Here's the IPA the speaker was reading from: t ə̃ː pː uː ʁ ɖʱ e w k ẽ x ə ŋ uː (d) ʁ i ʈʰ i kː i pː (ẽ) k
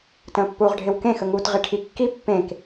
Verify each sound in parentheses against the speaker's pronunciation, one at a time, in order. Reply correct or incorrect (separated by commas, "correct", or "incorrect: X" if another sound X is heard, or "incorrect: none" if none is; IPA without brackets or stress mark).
incorrect: t, correct